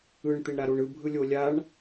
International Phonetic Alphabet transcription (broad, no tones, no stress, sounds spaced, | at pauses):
ɯ ɳ t̪ e ɳ ɾ a ɾ o ɳ ɯ bʱ ɯ lʲ o lʲ a ɳ